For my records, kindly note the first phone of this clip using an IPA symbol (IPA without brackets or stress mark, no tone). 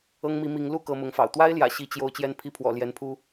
ɤ